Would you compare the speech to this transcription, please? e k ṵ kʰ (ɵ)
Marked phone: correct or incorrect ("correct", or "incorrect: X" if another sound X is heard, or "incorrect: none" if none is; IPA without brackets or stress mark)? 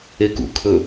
correct